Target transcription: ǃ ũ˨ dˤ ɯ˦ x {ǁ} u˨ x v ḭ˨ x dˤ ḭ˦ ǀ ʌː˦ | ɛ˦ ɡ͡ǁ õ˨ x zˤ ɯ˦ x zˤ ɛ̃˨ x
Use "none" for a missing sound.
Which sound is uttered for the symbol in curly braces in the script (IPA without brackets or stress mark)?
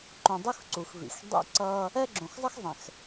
ǀ